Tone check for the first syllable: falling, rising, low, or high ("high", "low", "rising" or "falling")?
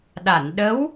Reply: low